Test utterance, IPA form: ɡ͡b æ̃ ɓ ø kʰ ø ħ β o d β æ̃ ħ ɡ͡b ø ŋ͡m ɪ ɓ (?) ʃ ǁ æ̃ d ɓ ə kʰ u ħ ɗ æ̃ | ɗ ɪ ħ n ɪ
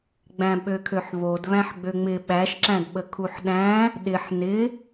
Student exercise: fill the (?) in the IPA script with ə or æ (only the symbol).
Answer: æ